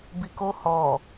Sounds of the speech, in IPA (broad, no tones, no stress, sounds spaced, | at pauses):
b i k o h ɔ